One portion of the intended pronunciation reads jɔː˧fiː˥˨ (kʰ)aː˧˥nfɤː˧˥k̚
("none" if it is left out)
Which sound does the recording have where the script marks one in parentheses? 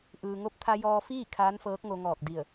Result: kʰ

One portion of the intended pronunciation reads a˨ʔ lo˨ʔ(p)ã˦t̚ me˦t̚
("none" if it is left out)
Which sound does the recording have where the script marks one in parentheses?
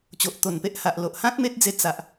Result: h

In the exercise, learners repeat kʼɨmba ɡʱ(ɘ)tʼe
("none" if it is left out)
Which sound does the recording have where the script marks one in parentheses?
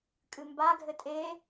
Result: ɘ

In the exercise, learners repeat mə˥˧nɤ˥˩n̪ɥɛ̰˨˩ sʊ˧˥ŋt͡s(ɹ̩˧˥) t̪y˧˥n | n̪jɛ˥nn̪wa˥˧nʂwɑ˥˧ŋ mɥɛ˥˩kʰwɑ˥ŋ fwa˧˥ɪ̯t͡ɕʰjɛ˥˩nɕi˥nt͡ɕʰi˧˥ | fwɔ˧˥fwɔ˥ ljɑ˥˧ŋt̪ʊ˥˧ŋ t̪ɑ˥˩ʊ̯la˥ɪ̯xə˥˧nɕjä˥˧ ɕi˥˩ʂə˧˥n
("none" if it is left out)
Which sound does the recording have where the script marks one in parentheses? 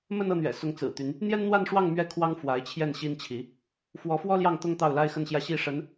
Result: ɹ̩˨˩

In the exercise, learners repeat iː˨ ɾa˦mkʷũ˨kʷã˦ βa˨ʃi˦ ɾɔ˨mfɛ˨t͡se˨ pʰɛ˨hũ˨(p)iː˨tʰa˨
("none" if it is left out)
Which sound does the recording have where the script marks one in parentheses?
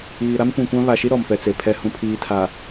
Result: pʰ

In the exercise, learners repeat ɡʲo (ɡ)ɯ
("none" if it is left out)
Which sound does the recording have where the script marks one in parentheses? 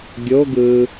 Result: ɡ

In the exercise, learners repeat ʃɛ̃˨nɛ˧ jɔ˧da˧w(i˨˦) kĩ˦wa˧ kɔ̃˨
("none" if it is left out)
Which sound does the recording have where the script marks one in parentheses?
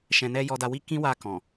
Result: i˦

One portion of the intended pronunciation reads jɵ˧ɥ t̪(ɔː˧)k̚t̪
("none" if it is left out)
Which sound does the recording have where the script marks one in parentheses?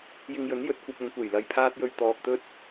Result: ɔː˧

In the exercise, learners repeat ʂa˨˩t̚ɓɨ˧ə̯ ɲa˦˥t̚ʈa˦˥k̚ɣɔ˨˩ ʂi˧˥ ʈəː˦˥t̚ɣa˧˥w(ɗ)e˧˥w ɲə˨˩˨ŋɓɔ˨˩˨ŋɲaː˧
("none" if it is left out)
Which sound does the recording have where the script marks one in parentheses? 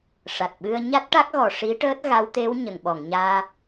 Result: t̪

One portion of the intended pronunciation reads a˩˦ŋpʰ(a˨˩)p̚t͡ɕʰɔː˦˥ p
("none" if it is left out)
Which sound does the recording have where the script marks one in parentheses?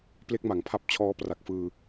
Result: a˦˥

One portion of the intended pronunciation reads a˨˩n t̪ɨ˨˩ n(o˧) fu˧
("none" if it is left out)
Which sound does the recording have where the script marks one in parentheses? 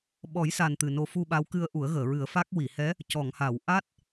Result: o˧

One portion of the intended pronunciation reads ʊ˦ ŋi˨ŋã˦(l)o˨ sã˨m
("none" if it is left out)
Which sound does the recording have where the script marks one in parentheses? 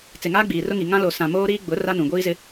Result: l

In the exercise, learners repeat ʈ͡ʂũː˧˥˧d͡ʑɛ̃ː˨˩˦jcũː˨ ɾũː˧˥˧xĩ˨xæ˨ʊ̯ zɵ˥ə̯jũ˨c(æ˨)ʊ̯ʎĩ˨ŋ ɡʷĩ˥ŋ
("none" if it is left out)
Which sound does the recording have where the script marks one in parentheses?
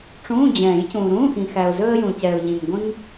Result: ɛ˨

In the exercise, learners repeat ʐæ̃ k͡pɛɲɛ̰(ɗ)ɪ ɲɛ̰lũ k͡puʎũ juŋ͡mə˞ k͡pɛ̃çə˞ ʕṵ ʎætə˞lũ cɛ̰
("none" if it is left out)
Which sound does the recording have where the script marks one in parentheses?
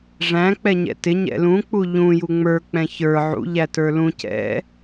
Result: t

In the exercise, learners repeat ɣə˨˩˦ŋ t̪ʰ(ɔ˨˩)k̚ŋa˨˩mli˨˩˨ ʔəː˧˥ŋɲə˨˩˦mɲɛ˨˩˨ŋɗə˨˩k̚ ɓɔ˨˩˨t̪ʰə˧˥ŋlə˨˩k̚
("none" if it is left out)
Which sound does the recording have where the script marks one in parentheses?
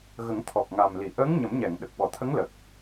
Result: ɔ˨˩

